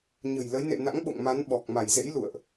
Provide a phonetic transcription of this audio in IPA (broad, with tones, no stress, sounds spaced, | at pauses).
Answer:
ɲ ə̤˨˩ j l ə˨˦ j n ḛ˧˨ n a̰˧˥ ŋ ɓ o̰˧˨ ŋ m a˨˦ n ɓ ɔ˨˩ k̚ m a˧˩ j z ḛ˧˥ j l ṵ˧˨ ə̯ ʔ